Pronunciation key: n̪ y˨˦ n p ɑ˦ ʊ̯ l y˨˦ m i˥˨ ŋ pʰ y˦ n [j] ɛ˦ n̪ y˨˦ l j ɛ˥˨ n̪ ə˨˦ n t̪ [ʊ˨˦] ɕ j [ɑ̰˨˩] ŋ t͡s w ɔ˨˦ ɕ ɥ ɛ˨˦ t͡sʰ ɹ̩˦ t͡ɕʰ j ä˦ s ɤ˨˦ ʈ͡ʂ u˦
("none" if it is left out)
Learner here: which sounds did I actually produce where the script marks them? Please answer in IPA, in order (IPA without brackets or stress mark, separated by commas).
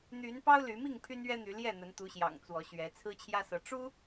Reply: ɥ, u˨˦, ɑ̰˨˩